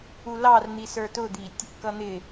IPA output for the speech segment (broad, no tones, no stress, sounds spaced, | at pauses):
u l ɑ r n̪ i s ə˞ t ʊ d̪ i tʲ | k ʌ n̪ ɪ